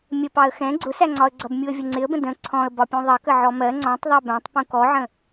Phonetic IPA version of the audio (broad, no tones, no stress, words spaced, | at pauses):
mʲəpɑə̯ xɛ̃ ɡ͡ǀʊsæŋ͡ǀɒə̯ɡ͡ǀʌb mʲuə̯vʲəŋ͡ǀɪə̯bə̃ də̃ ǀʰɔ̃ə̯ bɒpʲũðˤʌkə ʕɔmɜ ŋ͡ǀɔ̃tˤ ðˤɜbæ̃tˤ pũkɔʕə̃